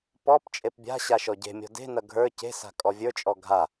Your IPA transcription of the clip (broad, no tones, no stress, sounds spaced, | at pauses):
p ɔ p t͡ʃʼ e p bʲ a̤ ɕ a ʃ ɔ ɟ e̤ mʲ ɔ̤ d e̤ n ɐ ɡʱ ə˞ c e̤ s a̤ kʼ ɔ vʲ ə˞ t͡ʃʼ ɔ ɡʱ a